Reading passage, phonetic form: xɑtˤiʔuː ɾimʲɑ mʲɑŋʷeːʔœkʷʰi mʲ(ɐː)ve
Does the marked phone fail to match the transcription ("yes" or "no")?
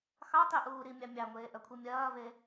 no